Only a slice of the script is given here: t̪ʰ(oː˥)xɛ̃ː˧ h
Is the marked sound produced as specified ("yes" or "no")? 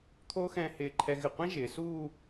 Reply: yes